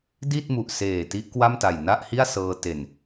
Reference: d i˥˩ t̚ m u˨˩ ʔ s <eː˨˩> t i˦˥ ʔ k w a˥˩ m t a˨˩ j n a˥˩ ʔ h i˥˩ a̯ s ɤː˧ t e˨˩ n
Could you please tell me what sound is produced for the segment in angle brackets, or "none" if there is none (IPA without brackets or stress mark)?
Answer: eː˨˩